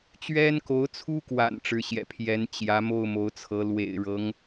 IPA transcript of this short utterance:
t͡ɕɥɛ˥nko˧˥ʊ̯t͡sʰu˥kwa̰˨˩n ʈ͡ʂɻ̩˧˥ɕjɛ̰˨˩pʰjɛ˧˥n t͡ɕjä˧˥mo˥˩ʊ̯ mo˧˥ʊ̯t͡sʰɤ˧˥ lwḛ˨˩ɪ̯ɻɤ˧˥ŋ

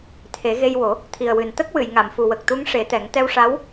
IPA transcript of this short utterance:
t̪ʰe˨˩˦ɣe˧jwo˨˩˦ | t̪ʰi˨˩ə̯wɨ˨˩n t̪ə˦˥k̚wɨ˨˩˨j ŋa˨˩˨mfu˨˩wə˨˩k̚t̪u˧˥ŋ ʂe˨˩˦t̪ɛ˨˩˦ŋ t̪ɛ˧wʂa˧˥w

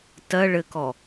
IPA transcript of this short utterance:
tɜ ɭɘkɔ

